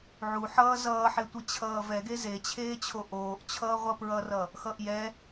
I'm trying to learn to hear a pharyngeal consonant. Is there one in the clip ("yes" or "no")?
yes